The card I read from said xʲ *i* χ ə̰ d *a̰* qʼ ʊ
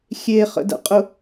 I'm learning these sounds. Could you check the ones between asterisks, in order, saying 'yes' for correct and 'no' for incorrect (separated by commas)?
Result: no, no